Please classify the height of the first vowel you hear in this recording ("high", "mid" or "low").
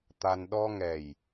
low